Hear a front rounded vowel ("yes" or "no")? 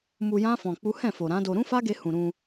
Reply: no